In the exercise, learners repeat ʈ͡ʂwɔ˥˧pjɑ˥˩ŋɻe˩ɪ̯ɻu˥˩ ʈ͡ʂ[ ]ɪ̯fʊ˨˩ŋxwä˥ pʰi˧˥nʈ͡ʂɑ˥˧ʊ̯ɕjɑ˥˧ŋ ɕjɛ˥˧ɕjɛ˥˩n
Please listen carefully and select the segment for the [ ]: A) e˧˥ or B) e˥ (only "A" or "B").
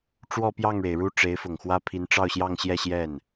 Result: A